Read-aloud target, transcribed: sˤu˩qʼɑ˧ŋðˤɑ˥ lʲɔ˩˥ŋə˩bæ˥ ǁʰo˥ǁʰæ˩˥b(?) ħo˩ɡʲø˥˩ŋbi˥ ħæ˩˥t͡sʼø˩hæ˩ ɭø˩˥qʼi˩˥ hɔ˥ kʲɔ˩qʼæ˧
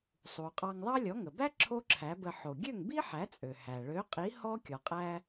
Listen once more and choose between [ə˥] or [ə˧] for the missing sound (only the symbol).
ə˧